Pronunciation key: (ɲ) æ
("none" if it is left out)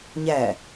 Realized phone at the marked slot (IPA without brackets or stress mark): ɲ